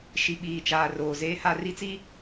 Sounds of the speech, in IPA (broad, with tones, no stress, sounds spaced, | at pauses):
ʃ i˨ ɓ iː˨ t͡ʃ aː˨ r oː˨ z eː˦ h a˦ r i˦ t͡s i˦